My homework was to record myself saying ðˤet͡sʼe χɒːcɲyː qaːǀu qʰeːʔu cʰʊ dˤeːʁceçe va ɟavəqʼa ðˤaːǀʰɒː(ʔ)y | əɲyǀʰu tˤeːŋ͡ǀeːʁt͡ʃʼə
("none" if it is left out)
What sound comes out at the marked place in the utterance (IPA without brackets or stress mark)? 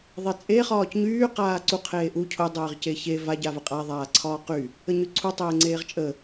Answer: q